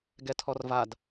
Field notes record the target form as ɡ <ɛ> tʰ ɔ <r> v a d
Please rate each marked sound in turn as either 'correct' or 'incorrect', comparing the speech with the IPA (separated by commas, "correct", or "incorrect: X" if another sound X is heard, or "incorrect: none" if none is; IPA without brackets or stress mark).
correct, correct